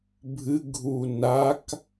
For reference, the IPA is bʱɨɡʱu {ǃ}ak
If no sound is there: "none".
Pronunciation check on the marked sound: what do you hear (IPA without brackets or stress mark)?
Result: n